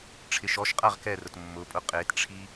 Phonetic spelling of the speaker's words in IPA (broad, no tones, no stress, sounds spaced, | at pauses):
ʈ͡ʂʰ ɪ ʃ ɔ ʃ qʼ a ʁ k ɛ r ʊ t mː ʊ pʼ ʊ qʼ e t ʈ͡ʂʰ i